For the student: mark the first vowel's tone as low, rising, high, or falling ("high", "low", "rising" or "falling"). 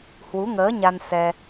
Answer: rising